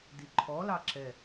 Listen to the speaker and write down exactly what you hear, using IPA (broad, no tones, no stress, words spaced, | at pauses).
diǃʰɔlɑ ǁɛ